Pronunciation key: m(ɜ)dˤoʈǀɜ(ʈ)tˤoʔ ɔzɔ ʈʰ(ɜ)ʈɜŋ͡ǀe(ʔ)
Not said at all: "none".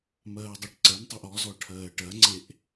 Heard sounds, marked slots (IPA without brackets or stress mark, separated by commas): ɜː, n, ɜː, ʔ